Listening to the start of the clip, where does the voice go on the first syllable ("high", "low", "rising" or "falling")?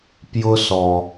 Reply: high